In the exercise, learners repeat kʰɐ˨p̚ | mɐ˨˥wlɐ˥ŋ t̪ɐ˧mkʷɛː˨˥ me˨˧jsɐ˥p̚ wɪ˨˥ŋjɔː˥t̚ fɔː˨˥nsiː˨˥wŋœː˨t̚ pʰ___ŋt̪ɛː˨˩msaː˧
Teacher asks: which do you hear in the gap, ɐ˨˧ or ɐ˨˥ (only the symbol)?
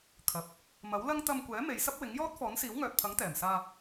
ɐ˨˥